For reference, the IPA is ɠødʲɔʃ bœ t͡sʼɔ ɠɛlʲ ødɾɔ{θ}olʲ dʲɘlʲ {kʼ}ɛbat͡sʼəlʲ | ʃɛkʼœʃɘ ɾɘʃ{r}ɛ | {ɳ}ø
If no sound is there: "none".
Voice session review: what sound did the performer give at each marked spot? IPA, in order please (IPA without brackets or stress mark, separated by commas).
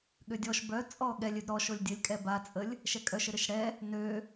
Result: ʃ, kʼ, ɽ, n